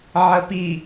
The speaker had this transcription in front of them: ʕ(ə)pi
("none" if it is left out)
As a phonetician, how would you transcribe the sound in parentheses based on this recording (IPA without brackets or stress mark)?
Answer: ə